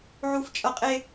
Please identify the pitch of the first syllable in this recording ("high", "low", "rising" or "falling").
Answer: high